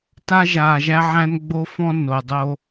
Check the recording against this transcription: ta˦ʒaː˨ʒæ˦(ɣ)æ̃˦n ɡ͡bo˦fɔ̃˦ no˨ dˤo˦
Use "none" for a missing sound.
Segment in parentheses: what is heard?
ʕ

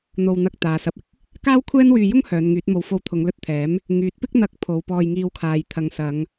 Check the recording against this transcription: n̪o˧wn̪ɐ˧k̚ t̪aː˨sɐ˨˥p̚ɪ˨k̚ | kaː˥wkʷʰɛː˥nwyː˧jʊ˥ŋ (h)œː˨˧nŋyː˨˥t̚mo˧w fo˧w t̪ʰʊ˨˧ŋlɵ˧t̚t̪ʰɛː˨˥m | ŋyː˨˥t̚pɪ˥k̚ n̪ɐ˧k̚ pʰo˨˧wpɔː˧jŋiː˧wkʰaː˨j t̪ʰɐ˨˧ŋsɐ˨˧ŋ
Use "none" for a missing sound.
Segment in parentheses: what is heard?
h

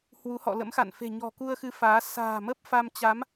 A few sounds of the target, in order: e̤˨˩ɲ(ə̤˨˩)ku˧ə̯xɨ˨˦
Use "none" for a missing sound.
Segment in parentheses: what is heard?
ɔ̤˨˩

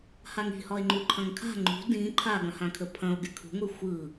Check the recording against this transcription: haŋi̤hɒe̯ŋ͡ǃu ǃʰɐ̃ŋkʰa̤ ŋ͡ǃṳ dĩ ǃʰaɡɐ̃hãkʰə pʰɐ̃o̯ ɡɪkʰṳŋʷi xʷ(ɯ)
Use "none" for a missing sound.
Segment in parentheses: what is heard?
ɯ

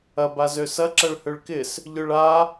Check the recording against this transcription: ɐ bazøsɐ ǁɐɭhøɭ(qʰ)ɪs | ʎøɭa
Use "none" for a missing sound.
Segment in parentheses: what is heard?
k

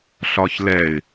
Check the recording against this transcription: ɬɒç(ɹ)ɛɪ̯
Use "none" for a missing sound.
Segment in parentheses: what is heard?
l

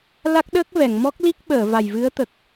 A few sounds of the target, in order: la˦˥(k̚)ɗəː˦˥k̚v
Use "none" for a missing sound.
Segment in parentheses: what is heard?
k̚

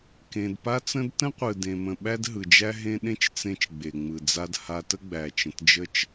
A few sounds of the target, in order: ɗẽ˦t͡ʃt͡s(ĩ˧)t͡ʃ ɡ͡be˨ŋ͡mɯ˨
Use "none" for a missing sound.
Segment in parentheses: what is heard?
ẽ˧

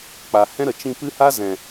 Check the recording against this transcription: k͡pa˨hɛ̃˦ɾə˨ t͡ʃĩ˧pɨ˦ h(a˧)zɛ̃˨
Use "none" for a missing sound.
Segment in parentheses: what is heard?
a˦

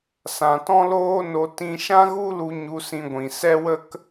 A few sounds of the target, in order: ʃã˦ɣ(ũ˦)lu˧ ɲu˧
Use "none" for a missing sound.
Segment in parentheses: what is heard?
u˦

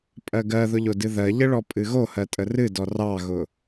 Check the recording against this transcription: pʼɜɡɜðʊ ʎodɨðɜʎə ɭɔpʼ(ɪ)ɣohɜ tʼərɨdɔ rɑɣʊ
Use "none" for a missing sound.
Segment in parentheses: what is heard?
ɨ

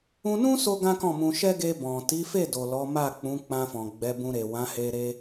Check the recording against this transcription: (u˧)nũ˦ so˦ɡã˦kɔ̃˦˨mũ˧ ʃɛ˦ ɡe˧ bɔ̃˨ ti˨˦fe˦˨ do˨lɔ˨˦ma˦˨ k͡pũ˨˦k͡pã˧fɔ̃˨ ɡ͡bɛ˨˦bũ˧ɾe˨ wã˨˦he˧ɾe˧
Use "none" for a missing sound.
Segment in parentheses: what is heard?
ũ˧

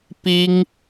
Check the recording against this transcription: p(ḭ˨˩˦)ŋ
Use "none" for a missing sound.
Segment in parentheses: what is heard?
i˥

